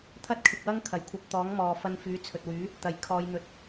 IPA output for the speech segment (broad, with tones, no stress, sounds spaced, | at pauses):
t̪ʰ ɐ˥ t̚ kʰ ɪ˨ k̚ w ɐ˥ ŋ kʰ ɐ˨˩ j kʷʰ ɐ˧ p̚ t̪ ɔː˨˥ ŋ m ɔː˨ f ɐ˧ n f yː˨˥ t͡sʰ ɵ˨ t̚ w yː˨˥ | t̪ ɐ˨˩ j kʰ ɔː˨˧ j n̪ ɵ˨˥ t̚